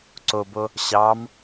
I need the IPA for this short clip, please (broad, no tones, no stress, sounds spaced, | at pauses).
ǀ o b o | ɕ ɑ m